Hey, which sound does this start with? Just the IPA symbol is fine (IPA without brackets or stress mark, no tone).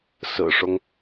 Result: s